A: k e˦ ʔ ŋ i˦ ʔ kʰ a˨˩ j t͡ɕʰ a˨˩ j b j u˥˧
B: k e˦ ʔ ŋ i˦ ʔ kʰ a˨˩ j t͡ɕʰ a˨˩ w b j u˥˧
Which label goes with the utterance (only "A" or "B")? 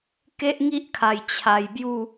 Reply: A